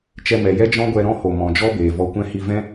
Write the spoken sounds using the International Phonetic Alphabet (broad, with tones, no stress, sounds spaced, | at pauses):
t͡ʃ ɛ˧ m ɛ˨ j ɛ˦ d͡ʒ ɔ̃˦ ɡʷ ɛ˧ ɾ ɔ̃˦ h o˨ m ɔ̃˨ d͡ʒ ɔ˦ b eː˨ v ɔ˧ kʷ ɛ̃˦ h i˧ v ɛ̃˦